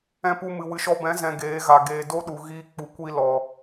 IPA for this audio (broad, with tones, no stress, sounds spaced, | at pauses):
ɛ̃˧ p u˧ m ɨ˨ w ɨ˨ ʃ ɔ˧ b ɛ̃˨˦ z ɛ̃˨ ɡ eː˨˦ ɣ a˨ ɡ eː˨ d o˦ ɗ u˨ ɣ iː˦ k͡p u˨ kʷ i˧ l ɔ˨